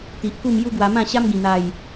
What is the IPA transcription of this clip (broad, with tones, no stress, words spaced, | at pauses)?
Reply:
t̪i˨ʔku˥˧m ju˦ɡwa˧mã˥˧ɕa˦m ɡĩ˨˩n̪a˨˩j